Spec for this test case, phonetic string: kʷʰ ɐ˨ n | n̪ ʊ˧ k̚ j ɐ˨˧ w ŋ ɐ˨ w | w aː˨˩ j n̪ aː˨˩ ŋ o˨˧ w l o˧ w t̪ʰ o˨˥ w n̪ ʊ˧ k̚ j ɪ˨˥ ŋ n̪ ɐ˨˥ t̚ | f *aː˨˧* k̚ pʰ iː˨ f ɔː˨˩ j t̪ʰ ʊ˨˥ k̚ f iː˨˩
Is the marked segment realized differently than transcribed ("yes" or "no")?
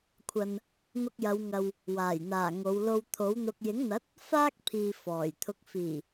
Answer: yes